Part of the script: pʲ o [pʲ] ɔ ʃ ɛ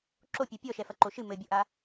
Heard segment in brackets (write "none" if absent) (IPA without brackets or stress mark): pʲ